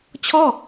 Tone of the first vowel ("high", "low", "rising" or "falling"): falling